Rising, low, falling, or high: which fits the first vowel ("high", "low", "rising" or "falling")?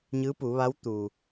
rising